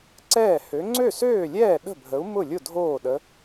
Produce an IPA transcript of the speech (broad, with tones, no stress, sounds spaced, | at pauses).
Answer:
ǀ ɛː˥˩ h ø˨˥ ŋ͡ǀ ø˥˩ s øː˥˩ lʲ ɛː˥˩ ɗ ə̤˥˩ bʱ ə˨˥ u̯ m ʊ˥˩ lʲ ʊ˥˩ dʱ oː˥˩ ɗ ə˨˥